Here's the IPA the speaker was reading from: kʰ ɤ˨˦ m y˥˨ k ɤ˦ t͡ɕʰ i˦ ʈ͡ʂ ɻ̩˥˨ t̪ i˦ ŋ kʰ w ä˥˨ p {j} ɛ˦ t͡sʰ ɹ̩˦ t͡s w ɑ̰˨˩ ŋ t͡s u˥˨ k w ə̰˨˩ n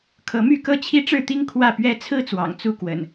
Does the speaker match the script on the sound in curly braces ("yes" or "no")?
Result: no